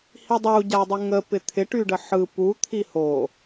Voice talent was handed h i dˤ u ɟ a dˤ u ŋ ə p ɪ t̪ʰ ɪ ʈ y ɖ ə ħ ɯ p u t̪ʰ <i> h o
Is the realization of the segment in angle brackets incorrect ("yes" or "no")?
no